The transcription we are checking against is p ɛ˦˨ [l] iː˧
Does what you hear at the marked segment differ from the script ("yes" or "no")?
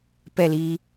no